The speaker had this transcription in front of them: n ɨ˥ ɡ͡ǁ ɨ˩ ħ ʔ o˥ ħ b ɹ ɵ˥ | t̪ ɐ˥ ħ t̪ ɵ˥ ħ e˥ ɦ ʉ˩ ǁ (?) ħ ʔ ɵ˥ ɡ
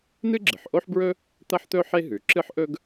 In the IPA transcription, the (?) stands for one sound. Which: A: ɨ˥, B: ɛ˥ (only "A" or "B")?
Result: A